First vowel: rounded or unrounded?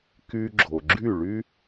rounded